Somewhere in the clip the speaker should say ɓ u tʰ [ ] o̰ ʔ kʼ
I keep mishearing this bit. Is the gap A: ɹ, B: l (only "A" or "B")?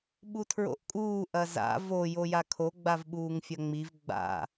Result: A